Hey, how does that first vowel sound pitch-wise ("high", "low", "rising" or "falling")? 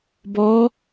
rising